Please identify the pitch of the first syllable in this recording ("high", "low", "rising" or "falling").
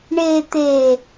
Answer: low